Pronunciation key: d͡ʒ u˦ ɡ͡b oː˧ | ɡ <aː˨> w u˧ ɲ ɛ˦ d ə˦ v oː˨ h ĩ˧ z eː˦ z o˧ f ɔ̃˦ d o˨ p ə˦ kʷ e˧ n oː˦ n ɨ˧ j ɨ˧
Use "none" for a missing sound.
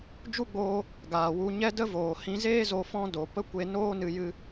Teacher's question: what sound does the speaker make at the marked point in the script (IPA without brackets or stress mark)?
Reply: aː˨